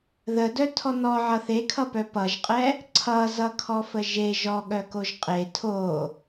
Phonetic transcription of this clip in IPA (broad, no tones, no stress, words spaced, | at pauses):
ðədœ tʰɔnɔʕʌ θekʰʌpœ pʌʒqʼɛ | ǀʰʌ zʌkʰɔfəʒe ʒɔɠœkoʒ qʼe tʰo